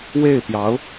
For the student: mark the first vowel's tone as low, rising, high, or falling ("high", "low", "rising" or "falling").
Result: falling